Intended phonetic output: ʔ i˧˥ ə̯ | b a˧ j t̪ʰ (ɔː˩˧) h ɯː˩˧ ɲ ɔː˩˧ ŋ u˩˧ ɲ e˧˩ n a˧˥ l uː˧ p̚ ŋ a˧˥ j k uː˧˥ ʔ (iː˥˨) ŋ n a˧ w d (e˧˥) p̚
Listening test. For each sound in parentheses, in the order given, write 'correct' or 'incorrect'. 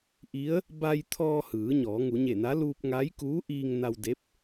incorrect, incorrect, correct

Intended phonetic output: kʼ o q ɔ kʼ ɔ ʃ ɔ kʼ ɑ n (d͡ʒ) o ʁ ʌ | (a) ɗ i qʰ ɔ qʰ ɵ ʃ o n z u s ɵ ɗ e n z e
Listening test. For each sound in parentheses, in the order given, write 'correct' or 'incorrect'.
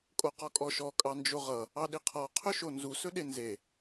correct, incorrect

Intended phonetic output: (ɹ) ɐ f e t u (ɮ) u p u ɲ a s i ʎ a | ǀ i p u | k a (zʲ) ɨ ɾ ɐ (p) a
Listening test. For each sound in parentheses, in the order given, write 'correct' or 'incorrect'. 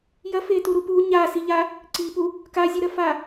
incorrect, incorrect, correct, incorrect

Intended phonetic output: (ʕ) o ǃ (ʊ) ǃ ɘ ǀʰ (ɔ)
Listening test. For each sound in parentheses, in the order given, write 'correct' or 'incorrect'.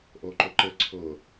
incorrect, correct, incorrect

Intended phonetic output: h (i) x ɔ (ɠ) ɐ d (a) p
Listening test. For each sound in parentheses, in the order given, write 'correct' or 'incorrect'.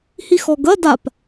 correct, incorrect, correct

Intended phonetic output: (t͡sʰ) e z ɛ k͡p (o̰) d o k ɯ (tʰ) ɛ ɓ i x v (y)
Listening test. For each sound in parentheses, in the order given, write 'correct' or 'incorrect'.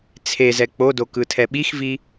correct, incorrect, correct, incorrect

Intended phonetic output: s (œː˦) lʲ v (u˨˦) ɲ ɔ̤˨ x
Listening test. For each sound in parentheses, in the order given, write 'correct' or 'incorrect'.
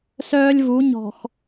correct, correct

